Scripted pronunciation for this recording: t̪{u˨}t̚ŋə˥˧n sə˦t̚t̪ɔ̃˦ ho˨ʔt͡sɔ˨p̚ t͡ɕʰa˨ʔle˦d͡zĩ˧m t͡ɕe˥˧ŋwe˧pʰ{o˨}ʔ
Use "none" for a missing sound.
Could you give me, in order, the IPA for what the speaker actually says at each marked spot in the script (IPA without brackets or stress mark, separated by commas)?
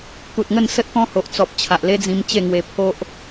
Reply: u˨, o˦